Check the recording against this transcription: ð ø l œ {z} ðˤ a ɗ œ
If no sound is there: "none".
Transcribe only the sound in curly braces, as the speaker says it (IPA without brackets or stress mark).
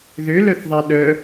θ